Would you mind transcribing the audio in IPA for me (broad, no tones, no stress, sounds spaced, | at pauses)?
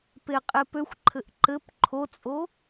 p e qʼ e p ø xʷ ǃʰ ɘ ʔ ǃ ɘ p ǃʰ o t͡sʼ o